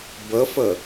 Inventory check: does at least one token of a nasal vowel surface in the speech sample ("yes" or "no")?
no